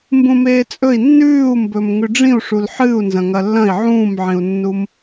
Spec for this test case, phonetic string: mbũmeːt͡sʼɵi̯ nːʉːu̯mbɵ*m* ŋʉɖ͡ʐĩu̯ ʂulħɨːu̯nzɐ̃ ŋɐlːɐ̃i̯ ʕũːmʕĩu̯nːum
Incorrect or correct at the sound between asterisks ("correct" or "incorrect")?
correct